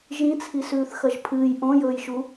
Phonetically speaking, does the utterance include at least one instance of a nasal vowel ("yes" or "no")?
yes